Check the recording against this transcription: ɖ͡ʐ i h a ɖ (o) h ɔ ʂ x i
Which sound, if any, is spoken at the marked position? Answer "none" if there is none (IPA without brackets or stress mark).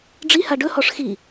ɵ